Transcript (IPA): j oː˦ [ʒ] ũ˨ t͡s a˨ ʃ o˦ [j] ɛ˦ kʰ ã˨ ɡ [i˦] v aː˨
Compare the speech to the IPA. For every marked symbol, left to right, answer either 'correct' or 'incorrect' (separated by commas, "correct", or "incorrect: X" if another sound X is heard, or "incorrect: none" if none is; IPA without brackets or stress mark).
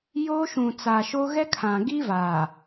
incorrect: ʃ, incorrect: ɣ, correct